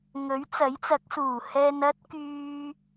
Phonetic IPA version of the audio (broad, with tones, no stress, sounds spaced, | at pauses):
ŋ ɵ˨˥ ɥ t͡s ɐ˨˥ j t͡s ɐ˨˥ k̚ s uː˨˩ h ɛː˧ n ɐ˥ t̚ k yː˧